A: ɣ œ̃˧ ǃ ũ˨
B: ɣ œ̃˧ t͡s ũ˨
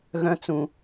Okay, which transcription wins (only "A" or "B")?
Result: B